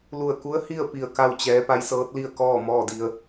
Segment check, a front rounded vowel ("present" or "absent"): absent